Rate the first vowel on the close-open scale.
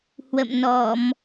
mid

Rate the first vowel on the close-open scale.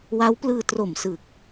open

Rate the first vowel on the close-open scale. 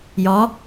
open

